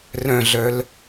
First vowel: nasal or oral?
nasal